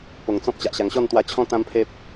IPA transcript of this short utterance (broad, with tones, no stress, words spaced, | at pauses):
po˨˩ŋt͡sɔ̃˦p̚ t͡ɕa˨ʔɕa˨˩ŋɕɔ˥˧n t̪wa˧t͡ɕʰɔ̃˦ t̪ã˦mpʰe˦p̚